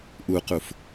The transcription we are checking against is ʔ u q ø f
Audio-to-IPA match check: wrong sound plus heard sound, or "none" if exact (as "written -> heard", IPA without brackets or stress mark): ø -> u